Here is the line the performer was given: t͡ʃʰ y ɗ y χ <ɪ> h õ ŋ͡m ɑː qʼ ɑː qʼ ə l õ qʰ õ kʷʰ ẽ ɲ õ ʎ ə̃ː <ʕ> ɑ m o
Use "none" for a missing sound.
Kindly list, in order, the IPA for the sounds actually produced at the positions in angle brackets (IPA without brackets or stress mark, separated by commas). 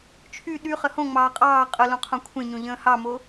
ə, h